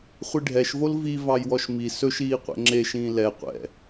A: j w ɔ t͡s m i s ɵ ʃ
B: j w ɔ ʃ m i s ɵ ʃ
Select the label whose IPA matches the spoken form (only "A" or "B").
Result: B